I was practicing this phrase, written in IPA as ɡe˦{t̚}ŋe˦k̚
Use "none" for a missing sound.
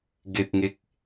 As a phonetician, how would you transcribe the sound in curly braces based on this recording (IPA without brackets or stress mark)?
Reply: t̚